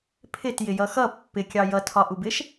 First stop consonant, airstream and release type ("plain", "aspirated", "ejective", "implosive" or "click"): aspirated